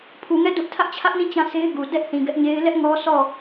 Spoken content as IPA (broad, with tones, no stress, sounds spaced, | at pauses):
pʰ u˨ ŋ ɛ˦˨ d ʊ˦ ʔ tʰ ä˦ ʔ t͡ɕʰ ä˦ ʔ n ĩ˦˨ t͡ɕ ã˦ sʰ e˦ ɪ̯ ɡ u˨ d ɛ˦ ʔ θ ĩ˨ ɡ ɛ˦ ʔ ɲ e˦ ɪ̯ l ɛ˦ ʔ ŋ ɔ˦ s ɔ˦˨